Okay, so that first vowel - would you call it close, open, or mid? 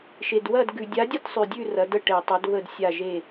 mid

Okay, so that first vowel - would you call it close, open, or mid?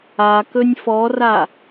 open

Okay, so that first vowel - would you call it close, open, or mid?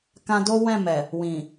open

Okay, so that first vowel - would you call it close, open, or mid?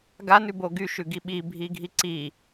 open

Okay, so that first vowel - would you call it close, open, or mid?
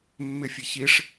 close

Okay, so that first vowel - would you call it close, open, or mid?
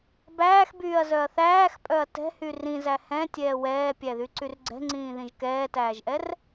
open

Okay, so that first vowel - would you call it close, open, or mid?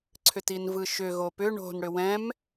close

